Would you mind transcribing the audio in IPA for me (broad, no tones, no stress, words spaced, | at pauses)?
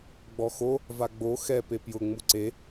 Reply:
ɡ͡bɔxo | vaɡ͡bo xɛ pepjʊ ŋ͡muǀe